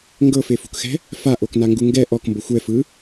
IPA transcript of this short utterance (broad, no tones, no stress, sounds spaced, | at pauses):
ŋ ɡ ɤ f e f ṳ k x ɛ̤ | f a ʔ o k n a ŋ ɡ u ŋ ɡ ɛ ʔ ɔ k m b ɤ xʷ ɛ f ɯ